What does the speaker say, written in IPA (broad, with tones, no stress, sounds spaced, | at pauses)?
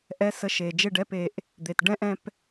ʔ ɛ˧˥˧ s ə˧˥˧ ʃ e˨˩ d͡ʒ e˥˨ ɖ ɛ˧˥˧ p e˨˩ ʔ | d̪ e˨˩ t ɖ ɛ̃˥ ʔ ɛ̃˥ p